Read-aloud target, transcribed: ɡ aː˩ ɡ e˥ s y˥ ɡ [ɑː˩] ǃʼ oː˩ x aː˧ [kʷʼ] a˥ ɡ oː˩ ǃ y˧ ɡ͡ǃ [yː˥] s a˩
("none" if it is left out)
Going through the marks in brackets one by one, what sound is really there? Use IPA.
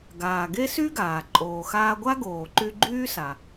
aː˩, ɡʷ, yː˥

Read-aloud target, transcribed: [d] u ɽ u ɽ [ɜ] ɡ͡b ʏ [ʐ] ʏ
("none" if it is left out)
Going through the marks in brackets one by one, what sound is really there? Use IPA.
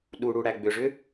ɗ, æ, ʐ

